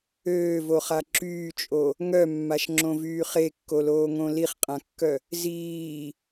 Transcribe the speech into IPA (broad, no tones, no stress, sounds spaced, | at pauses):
øː v o χ a ǁ yː t͡ʃʼ o | ŋ œ mː a ʃ ŋ͡ǁ õ v yː χ e kː o l oː ŋ õ l i χ qʼ ã kː œ | z iː